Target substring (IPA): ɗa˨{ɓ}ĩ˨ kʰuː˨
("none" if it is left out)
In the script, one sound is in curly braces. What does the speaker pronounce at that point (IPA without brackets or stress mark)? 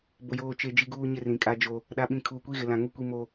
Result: ɓ